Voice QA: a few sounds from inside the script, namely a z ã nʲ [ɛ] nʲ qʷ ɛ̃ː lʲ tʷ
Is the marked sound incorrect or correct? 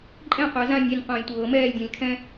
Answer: correct